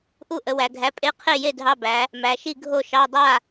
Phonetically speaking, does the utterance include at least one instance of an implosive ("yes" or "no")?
no